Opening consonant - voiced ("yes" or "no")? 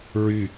yes